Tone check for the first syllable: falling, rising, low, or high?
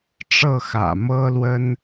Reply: falling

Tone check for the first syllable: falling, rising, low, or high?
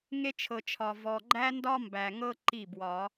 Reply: high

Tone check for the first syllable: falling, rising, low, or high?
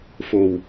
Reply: low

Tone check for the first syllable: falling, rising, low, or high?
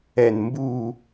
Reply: falling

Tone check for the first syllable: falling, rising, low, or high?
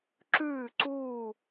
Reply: falling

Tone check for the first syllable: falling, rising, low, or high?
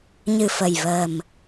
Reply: low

